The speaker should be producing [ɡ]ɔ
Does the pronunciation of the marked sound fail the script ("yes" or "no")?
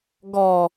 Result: no